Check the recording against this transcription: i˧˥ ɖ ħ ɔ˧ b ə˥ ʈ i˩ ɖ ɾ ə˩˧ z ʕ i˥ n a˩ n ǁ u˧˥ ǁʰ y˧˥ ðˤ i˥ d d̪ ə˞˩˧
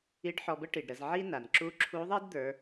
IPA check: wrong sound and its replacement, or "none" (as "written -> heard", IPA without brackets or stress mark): y˧˥ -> u˧˥